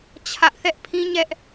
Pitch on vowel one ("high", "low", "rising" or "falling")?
high